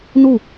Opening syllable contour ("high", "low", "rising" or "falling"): falling